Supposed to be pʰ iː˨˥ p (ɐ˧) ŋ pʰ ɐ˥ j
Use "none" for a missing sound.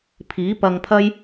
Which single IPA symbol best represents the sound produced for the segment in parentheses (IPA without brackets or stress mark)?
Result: ɐ˧